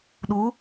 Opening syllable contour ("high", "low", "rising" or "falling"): rising